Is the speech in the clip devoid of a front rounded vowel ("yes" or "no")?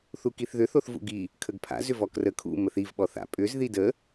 no